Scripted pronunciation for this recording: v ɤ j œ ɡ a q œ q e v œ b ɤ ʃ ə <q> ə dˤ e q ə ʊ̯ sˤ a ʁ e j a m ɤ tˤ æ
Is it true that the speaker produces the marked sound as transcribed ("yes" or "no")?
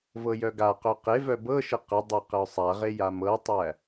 yes